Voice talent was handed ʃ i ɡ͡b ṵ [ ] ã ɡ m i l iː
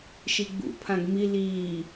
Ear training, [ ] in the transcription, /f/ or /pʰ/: pʰ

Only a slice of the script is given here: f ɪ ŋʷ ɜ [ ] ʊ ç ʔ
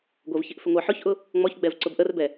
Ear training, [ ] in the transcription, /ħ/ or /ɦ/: ħ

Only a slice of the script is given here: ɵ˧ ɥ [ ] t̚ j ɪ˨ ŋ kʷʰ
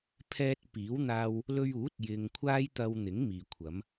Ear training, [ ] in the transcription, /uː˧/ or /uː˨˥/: uː˨˥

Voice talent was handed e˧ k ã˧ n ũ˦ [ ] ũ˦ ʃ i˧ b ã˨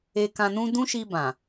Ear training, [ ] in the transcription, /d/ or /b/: d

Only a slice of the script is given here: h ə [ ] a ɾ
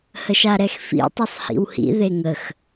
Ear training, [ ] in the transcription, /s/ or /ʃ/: ʃ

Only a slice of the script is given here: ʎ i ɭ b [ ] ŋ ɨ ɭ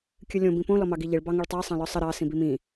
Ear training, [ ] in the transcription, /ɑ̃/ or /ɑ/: ɑ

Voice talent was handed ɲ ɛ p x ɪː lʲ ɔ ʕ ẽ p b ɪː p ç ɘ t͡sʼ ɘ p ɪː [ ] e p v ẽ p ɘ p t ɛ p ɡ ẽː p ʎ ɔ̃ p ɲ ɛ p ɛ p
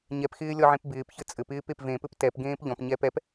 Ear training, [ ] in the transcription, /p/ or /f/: p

